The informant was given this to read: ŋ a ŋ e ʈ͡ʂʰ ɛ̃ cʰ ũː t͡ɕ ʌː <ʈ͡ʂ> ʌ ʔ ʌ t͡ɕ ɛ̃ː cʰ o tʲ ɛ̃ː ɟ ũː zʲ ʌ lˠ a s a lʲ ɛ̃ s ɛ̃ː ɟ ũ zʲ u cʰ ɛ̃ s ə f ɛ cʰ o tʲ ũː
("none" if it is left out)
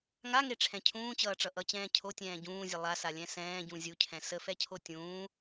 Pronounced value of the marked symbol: ʈ͡ʂ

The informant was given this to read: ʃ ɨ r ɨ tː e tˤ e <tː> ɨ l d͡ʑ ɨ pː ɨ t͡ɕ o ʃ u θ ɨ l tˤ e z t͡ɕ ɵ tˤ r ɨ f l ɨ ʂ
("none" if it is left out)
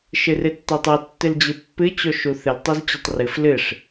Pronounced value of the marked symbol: tː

